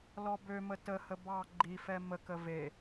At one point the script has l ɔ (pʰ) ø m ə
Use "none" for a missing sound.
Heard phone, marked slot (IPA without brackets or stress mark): b